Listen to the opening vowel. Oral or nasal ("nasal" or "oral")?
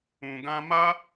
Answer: nasal